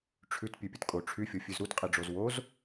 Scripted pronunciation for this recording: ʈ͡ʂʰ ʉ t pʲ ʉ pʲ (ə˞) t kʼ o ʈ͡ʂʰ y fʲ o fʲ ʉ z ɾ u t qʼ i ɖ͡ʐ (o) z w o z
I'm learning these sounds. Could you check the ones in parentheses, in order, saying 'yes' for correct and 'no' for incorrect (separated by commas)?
no, yes